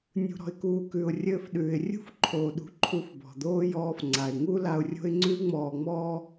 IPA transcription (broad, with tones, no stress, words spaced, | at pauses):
nʲṳ˩ɾɔ̤˩ɪ̯kuː˩ kʉ˩ʊ̯ rʲɘː˧fɗʉː˩ɪ̯rʲṳ˥f ǃʰoː˩ɗṳ˩ ǃʰu˧fbɔ̤˩d̪oː˥ jɔː˧fŋ͡ǀa˩ɪ̯ŋu˥ la˧ʊ̯rʲo̤˥ɪ̯ ŋ͡ǀʉ˥ŋ͡mɔː˧ŋ͡mɔː˥